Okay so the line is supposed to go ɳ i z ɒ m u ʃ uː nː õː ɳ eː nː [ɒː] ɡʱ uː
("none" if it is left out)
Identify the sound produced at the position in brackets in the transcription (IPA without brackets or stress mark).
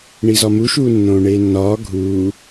ɒː